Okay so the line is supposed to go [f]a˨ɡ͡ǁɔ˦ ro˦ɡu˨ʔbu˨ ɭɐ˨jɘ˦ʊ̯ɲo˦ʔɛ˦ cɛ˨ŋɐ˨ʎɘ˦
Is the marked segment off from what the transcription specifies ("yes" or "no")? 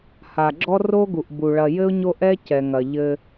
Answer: yes